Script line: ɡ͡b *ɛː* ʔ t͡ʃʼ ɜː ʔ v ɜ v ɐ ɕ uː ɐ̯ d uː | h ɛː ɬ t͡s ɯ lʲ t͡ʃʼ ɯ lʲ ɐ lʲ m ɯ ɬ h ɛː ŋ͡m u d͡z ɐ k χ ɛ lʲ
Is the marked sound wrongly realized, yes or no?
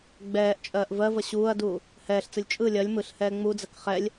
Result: no